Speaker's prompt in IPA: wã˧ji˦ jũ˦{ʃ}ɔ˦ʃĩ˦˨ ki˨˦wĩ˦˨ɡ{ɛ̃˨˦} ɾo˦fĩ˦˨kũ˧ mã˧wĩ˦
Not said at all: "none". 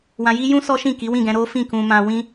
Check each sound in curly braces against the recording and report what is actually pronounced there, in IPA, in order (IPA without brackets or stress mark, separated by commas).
s, ɛ̃˧